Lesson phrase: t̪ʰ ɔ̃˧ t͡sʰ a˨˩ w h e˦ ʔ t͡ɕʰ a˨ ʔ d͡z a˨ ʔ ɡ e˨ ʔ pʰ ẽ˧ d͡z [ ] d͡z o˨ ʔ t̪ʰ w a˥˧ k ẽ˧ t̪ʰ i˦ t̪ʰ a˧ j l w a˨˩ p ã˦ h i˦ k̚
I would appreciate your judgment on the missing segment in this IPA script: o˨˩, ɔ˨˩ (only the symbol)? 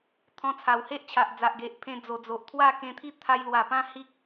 o˨˩